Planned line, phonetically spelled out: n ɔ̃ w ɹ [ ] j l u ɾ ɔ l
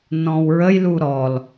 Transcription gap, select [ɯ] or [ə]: ə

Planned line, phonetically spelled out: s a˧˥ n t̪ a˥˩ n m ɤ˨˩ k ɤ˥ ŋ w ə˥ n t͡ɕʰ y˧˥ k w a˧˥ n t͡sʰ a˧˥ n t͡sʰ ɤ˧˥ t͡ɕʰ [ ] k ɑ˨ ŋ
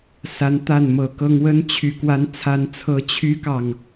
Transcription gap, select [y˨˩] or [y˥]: y˥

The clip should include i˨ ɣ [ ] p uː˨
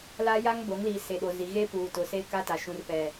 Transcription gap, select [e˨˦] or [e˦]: e˦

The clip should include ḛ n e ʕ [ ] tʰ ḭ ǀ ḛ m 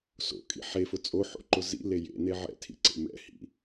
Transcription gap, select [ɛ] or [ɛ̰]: ɛ̰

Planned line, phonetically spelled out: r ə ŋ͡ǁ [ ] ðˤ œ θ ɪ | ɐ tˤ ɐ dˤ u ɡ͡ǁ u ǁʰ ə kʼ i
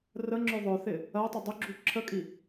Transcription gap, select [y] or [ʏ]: ʏ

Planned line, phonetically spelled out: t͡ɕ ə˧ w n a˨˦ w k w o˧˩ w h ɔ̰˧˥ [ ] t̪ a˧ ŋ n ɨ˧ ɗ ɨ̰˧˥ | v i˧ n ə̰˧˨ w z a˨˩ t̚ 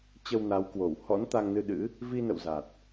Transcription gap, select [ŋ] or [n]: n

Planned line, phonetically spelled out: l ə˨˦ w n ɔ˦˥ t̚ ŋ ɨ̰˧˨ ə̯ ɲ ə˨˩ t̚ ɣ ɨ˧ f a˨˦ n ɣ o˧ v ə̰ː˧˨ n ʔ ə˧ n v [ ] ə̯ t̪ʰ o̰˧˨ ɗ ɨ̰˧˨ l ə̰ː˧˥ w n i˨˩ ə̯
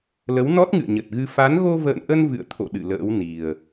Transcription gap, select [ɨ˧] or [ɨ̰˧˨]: ɨ̰˧˨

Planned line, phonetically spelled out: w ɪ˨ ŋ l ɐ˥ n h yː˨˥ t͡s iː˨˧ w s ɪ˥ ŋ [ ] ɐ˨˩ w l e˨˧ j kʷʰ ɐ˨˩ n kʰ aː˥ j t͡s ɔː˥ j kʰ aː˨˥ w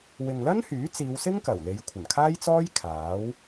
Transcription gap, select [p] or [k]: k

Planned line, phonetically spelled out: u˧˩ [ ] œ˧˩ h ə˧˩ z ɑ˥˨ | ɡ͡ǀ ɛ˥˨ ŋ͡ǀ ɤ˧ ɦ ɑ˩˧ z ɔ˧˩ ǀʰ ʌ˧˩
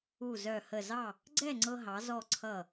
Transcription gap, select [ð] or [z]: z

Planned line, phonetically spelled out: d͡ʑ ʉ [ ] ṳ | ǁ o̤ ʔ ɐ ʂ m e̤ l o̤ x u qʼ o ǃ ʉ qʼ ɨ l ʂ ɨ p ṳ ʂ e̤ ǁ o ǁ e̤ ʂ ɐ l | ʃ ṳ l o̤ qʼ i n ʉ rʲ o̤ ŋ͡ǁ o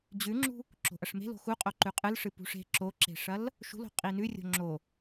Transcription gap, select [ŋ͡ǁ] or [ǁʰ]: ŋ͡ǁ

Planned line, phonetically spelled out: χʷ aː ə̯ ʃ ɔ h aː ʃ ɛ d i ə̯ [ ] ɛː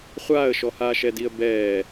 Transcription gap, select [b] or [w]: b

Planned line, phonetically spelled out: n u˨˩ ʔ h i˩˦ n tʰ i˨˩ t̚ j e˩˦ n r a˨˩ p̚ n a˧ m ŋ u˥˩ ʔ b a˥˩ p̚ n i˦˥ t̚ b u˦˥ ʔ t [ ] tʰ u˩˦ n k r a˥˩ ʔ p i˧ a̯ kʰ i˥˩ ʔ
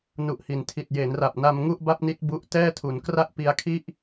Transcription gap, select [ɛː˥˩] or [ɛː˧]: ɛː˥˩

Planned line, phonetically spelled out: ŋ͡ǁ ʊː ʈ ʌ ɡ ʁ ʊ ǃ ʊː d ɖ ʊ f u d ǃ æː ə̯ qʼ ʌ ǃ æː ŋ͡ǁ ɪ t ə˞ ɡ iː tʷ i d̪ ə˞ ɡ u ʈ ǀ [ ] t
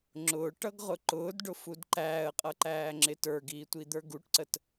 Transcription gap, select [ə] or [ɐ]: ə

